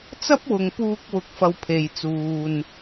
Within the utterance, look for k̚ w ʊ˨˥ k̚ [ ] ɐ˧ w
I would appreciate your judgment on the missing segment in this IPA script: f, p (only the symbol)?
f